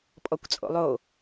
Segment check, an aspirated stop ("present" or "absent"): absent